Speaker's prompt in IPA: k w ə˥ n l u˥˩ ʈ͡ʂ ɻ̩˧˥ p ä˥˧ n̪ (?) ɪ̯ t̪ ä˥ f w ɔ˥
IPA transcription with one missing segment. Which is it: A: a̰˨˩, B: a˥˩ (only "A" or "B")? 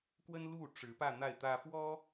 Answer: B